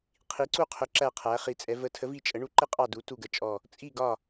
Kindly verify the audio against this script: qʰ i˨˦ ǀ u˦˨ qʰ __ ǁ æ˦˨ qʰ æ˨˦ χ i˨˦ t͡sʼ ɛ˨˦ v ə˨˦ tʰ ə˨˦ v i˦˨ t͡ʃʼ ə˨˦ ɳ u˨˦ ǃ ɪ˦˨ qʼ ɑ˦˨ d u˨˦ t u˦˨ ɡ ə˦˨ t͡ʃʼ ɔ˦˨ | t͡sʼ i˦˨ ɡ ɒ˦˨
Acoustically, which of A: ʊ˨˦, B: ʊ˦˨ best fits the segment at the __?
A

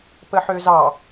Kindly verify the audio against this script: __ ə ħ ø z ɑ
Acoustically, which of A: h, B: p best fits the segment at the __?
B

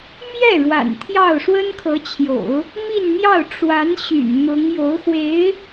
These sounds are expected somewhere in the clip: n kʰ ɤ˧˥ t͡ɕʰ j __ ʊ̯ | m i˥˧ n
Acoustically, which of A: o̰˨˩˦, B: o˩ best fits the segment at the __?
A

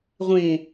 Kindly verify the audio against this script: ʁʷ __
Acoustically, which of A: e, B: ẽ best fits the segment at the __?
B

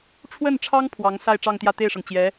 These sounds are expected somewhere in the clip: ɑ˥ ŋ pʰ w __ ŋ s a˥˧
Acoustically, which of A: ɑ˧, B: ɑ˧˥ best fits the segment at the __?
B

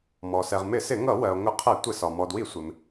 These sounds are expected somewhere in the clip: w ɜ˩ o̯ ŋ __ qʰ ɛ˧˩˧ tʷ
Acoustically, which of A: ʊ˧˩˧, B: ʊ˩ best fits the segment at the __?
A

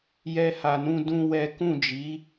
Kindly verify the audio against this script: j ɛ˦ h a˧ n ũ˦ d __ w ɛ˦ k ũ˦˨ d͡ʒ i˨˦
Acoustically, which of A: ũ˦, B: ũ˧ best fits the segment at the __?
A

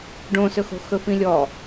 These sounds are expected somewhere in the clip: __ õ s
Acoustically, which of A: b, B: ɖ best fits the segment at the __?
B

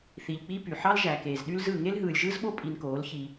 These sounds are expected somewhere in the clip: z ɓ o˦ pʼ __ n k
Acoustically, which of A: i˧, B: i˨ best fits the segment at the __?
A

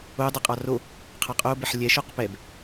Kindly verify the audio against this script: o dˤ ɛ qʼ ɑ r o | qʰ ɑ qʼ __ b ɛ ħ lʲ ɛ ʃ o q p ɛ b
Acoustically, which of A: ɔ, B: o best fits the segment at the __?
B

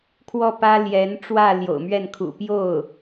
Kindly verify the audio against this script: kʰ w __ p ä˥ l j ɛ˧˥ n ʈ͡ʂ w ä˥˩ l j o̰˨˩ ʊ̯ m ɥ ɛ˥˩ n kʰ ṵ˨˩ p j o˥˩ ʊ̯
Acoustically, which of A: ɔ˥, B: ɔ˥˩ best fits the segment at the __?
B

